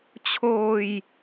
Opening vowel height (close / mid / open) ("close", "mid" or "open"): mid